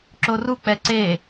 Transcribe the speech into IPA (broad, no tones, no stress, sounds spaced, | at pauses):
ǁ o r u k͡p ɛ ǀ e